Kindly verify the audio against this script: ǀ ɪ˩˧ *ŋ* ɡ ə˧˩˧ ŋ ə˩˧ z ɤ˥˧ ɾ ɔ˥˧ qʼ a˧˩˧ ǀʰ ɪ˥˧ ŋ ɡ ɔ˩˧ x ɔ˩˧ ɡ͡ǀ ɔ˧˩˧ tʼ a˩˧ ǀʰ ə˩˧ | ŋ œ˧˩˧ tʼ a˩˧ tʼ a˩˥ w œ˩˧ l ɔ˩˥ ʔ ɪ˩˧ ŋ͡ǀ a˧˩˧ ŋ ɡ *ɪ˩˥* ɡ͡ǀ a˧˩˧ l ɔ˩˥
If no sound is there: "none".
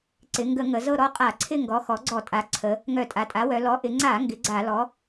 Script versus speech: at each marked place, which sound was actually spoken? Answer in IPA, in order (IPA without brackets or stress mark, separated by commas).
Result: ŋ, ɪ˩˥